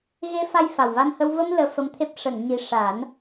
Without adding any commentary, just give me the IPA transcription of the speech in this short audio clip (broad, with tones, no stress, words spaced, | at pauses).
ɣe˧fa˧j fa˨˩wva˧nhə˧w və˧m ləː˧fə˧˥mt̪ʰe˦˥p̚ ʂə˨˩˨ŋɲi˨˩ʂa˨˩˦n